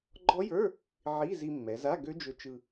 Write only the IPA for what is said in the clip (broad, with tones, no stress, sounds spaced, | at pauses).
ɡ͡ǃ ɔ˦˥ j ə˞˧˥˧ | ʕ i˧˥˧ z i˧ mː ɛ˩˧ z a˧˥˧ ɡ ø˦˥ d͡ʒ ɵ˧ t͡ʃ ɯ˧